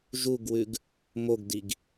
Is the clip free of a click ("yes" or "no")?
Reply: yes